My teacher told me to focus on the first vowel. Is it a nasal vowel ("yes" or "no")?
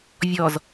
no